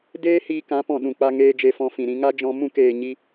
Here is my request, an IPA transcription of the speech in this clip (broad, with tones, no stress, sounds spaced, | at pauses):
d eː˦ h iː˧ k ã˨˦ p ɔ̃˨ ɗ ũ˨ k͡p a˧ ŋ eː˧ d͡ʒ e˧ f ɔ̃˧ f ĩ˨ ɾ ĩ˧ ŋ a˦ d͡ʒ ɔ̃˧ m ũ˦˨ k eː˨ ɲ i˧